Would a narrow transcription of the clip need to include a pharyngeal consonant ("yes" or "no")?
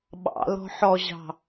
yes